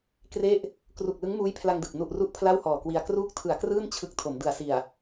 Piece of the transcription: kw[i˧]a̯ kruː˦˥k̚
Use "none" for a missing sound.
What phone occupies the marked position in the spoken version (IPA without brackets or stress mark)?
i˧